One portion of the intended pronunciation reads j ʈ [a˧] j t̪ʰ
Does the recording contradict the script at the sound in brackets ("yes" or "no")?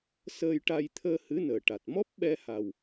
no